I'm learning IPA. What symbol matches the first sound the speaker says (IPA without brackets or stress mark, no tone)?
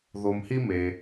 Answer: ð